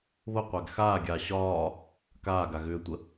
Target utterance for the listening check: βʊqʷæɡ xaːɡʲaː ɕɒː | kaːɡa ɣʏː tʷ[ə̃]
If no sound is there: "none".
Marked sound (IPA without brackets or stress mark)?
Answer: ə